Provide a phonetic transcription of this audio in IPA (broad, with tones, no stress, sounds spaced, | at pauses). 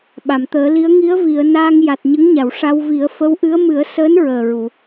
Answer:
ɓ a˨˩˨ m t̪ əː˨˩˦ l i˧˥ ə̯ ŋ i˧˥ ə̯ v i˨˩˨ ə̯ n aː˧ ŋ j a˨˩ t̚ ɲ ə˧˥ ŋ ɲ a˨˩˨ w ʂ a˧ w v i˨˩˦ ə̯ f ə˧˥ w ʔ ɨ˧˥ ə̯ m ɨ˨˩˦ ə̯ s əː˧˥ n ɹ əː˨˩ ɹ u˨˩˨